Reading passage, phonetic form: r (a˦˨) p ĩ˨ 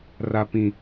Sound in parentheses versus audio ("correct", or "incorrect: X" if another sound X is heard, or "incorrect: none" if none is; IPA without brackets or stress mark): incorrect: a˨